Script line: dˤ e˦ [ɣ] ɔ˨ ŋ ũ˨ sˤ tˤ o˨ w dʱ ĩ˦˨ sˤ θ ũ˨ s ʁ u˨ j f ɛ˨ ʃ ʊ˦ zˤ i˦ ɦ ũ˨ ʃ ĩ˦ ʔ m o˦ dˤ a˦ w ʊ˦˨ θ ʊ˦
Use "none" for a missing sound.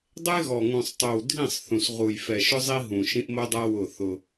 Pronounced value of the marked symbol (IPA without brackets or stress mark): ɣ